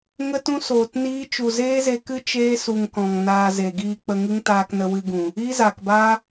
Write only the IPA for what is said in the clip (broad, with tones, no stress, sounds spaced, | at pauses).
ŋ ə˦ t ũ˦ s oː˨ t n iː˦ t͡ʃ u˨ z eː˦ z e˧ k ɨ˦ t͡ʃ eː˦ s u˨ ŋ k ɔ̃˨ ŋ n aː˧ z e˨ ɡ iː˧ k͡p ə˧ ŋ ɨ˦ ŋ t aː˧ k n ə˧ w ɨ˧ ɡ ũ˨ | iː˦ z aː˨ k b aː˦